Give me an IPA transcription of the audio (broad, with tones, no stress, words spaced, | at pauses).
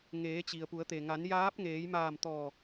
ŋeː˩˧t͡ɕi˩ə̯pu˩˧ə̯t̪e˩ ŋa˩˧njaː˧˥p̚ŋeː˩˧jmaː˧˩m t̪ɔː˧˩